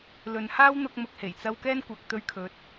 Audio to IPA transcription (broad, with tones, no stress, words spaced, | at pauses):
lɵ˨nhaː˥w n̪ʊ˧k̚mʊ˨k̚he˨˩jt͡sɐ˧w kɛː˥nkʷɐ˨k̚t̪ɵ˧ɥkʰɵ˨˥t̚